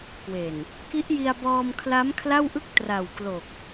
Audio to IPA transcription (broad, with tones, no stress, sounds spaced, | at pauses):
k w e˨˩ n | k i˦˥ ʔ j i˧ a̯ b ɔː˧ m kʰ l a˦˥ m kʰ l a˥˩ w ʔ ɯ˥˩ k̚ t r a˨˩ w k l o˨˩ k̚